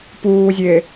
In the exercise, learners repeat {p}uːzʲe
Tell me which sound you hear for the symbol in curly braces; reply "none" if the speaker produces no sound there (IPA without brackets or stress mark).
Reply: p